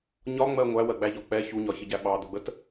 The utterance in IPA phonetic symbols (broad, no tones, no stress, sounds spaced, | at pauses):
ɲ ɒ ŋ͡m ɜ ŋʷ æ w ɜ ɡ͡b æ ʎ ɒ k͡p ɛ ç u ɲ ɒ ç ɪ ɟ æ ɓ ɑ d̪ ʊ ɡ͡b ə t